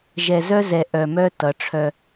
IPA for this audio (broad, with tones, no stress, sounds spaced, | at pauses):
ʒ ɛ˨ z œ˦ z ɛ˨ ʔ œ˨ m œ˦ t ʌ˨˦ ʈ͡ʂʰ œ˦